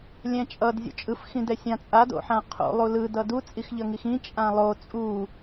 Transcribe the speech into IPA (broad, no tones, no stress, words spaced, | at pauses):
lʲɛ̃t͡ʃʼʌd zʲo̰t͡ʃʼɯf xĩdɛsʲãt͡sʼad o̰ħãqʰo̰ lˠulɯ dʌdu t͡sʼixʎʌŋixĩ t͡ʃʼãlˠo t͡sʼu